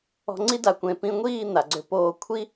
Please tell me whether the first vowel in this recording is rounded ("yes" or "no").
yes